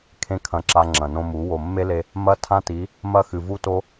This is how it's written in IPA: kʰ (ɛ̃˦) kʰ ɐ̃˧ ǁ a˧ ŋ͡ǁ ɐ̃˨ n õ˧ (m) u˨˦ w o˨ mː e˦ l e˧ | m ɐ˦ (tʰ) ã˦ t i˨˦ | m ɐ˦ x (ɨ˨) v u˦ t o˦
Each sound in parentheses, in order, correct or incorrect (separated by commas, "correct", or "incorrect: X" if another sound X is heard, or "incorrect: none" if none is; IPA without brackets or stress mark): incorrect: ẽ˦, correct, correct, correct